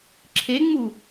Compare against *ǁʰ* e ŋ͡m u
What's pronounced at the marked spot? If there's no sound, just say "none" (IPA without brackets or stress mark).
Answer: ǁʰ